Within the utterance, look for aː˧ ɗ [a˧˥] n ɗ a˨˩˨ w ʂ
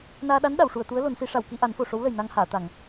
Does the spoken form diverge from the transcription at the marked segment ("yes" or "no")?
no